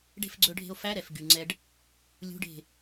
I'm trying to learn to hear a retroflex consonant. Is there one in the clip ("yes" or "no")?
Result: yes